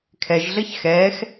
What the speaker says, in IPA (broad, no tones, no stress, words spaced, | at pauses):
kʰɛʒɮɜç xɛːx